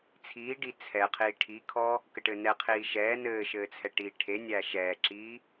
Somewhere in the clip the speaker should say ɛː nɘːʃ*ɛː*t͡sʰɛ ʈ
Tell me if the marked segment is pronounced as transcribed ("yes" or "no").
no